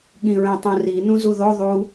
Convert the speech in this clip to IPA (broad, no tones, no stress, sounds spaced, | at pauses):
ɠ ĩ ɹ ẽ tˤ ũ r i n ũ z u ð o ðˤ u